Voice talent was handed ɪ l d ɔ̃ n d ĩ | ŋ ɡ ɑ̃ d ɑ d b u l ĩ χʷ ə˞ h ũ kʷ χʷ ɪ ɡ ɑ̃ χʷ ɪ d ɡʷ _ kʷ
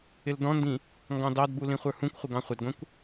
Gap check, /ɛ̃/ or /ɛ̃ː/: ɛ̃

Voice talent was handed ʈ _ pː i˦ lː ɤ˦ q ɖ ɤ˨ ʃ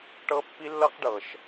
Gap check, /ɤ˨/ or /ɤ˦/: ɤ˦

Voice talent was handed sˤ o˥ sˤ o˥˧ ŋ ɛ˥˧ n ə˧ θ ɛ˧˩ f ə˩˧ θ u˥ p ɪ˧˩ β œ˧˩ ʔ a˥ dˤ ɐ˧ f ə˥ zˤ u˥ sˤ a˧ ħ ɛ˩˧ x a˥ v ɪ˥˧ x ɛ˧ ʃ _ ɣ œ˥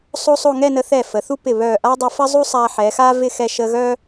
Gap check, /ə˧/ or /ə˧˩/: ə˧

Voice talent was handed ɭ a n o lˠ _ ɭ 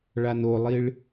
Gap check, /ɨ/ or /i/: i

